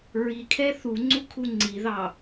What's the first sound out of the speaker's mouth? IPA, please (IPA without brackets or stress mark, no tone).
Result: ɹ